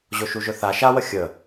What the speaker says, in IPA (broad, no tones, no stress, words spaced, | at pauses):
ʑoʃuʒɵθa ʃawə xʲə